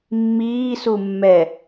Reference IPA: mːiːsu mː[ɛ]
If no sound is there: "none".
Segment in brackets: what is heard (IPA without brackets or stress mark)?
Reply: ɛ